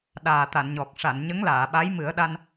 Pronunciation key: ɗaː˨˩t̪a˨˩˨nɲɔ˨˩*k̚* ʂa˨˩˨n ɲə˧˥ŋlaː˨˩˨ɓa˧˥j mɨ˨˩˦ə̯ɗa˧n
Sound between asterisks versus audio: correct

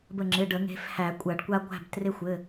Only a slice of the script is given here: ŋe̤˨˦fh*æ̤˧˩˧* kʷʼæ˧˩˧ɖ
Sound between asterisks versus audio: incorrect: æ˧˩˧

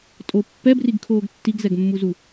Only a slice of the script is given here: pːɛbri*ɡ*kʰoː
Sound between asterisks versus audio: correct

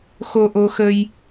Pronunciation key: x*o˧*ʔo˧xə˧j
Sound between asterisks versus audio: correct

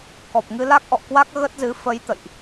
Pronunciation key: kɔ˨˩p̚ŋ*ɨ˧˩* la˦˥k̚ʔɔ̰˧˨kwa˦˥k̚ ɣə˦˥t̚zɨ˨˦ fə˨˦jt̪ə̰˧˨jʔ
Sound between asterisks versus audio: incorrect: ɨ˧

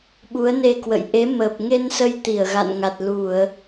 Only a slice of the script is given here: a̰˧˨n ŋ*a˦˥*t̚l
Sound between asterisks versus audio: incorrect: a˨˩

